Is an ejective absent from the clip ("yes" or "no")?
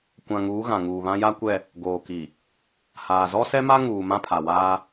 yes